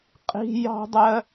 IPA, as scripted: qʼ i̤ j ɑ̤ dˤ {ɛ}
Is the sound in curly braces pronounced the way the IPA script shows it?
no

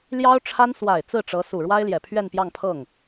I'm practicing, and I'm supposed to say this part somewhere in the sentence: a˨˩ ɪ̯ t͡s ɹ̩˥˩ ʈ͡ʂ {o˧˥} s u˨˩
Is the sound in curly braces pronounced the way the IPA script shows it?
no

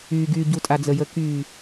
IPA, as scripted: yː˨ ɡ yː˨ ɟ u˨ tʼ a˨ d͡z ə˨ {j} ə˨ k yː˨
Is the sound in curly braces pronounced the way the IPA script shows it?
yes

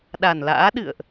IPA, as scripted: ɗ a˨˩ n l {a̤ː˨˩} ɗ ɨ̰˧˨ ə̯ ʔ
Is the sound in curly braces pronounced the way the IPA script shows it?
no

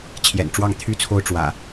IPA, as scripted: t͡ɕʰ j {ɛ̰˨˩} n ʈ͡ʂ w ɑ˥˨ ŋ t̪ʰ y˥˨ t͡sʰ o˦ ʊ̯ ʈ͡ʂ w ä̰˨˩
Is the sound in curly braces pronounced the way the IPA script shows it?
yes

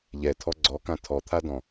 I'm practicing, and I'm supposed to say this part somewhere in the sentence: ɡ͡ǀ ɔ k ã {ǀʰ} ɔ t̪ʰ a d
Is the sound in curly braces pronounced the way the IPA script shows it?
no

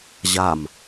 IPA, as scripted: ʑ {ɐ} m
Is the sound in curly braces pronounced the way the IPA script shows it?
no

